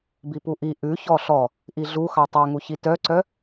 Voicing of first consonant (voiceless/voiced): voiced